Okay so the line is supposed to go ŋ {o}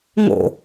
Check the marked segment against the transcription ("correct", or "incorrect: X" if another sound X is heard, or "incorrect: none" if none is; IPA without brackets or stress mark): incorrect: o̰